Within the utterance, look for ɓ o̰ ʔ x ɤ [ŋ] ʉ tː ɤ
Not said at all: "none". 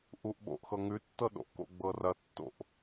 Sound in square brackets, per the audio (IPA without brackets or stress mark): ŋ